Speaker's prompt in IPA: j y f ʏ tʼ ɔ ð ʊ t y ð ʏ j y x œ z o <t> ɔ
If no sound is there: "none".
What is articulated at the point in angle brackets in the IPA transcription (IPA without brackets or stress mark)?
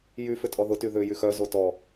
t